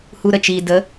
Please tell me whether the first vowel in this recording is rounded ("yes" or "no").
yes